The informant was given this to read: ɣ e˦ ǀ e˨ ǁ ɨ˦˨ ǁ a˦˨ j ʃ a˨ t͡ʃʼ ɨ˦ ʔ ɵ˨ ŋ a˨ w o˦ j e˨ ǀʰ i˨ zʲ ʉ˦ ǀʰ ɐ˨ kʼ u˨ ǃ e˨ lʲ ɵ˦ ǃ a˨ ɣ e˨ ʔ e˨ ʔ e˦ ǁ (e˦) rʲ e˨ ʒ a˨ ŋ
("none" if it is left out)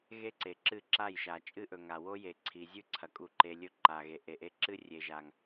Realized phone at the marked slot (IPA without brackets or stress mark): ɨ˦